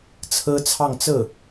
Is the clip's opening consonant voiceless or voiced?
voiceless